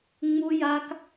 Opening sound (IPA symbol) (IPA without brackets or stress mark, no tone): ŋ͡m